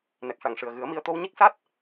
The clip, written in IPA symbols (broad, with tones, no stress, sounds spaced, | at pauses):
n ɛ˨˩ k̚ ʂ a˨˩ ŋ ʂ ɨ˨˩ ə̯ ɣ ɨ˨˩˦ ə̯ m i˧ ə̯ t̪ o˧ w ɲ i˦˥ k̚ s a˦˥ t̚